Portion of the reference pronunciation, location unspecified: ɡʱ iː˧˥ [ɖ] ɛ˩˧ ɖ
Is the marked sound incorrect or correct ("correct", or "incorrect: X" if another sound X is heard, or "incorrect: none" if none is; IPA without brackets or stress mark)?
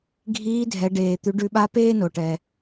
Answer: incorrect: dʱ